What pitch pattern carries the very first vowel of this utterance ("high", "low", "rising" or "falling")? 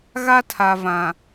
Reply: high